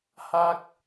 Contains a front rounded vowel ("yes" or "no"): no